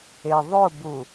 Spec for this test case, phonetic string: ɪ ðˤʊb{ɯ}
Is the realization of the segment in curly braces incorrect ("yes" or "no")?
yes